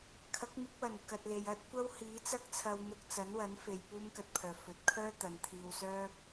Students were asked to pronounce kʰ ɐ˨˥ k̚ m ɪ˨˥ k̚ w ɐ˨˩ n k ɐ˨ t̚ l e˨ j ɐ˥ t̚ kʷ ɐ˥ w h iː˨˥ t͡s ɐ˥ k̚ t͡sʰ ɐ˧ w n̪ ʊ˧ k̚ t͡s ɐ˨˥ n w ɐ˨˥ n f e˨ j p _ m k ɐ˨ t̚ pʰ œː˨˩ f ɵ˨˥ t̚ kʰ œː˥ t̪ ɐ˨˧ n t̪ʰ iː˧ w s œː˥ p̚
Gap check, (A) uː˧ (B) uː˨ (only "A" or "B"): A